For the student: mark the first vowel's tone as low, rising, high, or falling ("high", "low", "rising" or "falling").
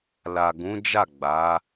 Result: low